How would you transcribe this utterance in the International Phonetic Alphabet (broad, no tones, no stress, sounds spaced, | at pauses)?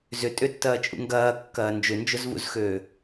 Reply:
z ʏ tʼ ʏ tː ɐː t͡ʃʼ ṵ ŋ ɡ ɐː kː ɐː n d͡ʒ ʏ n d͡ʒ ʊ z v ṵ z x øː